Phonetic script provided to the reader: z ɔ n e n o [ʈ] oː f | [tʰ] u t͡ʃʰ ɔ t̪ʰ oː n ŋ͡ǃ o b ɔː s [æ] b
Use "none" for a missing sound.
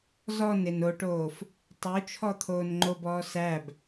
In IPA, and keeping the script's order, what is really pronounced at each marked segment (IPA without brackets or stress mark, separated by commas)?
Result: ʈ, tˤ, æ